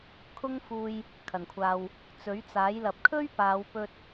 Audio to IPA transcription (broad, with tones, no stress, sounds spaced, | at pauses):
kʰ ʊ˥ ŋ f uː˧ j | kʰ ɐ˨˩ n kʷʰ aː˨ w | t͡s ɵ˨˥ ɥ t͡s aː˨˥ j l ɐ˨ p̚ kʰ ɵ˥ ɥ p aː˨˧ w p ɵ˧ t̚